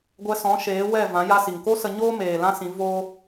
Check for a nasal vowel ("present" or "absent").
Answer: present